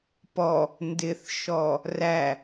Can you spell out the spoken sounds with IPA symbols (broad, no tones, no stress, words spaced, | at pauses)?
pɔ | ndɪθʃɔ | ræ